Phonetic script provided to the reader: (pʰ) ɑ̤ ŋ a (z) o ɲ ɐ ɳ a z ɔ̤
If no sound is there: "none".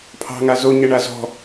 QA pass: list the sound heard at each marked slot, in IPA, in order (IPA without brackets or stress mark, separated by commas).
pʰ, z